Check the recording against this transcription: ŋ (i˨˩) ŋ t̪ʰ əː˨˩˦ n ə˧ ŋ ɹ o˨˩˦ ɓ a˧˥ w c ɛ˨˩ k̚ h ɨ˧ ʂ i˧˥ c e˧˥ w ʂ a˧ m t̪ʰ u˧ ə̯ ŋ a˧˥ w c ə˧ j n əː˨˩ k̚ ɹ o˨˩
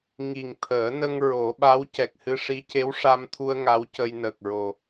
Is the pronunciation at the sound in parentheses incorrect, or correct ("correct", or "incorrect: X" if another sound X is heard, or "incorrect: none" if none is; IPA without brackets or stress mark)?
correct